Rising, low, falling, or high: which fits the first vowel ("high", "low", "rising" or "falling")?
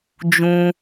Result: high